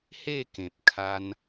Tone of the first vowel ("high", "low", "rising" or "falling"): falling